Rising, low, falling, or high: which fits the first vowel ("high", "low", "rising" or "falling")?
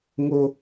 high